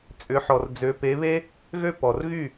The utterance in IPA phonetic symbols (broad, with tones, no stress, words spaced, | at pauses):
t͡sʼʏ˨˦ħɔ˨r d͡zø˨˦ pe˨˦βe˦ | ɣø˦pɔ˨rɣy˦˨